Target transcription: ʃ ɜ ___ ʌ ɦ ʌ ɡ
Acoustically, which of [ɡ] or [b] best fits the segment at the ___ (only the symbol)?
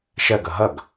ɡ